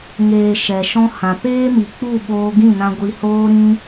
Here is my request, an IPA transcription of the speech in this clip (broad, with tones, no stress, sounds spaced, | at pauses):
ŋ eː˨ ʃ ɛ˨ ʃ ɔ̃˦ h ã˨ p eː˦ m i˨ k͡p u˦˨ ɓ oː˧ ɡ ĩ˦˨ n ã˧ ɡʷ i˧ h oː˦ ɾ ĩ˦